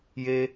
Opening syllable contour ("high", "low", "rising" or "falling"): high